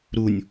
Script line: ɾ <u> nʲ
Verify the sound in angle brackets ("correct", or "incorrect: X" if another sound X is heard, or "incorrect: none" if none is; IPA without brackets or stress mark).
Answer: correct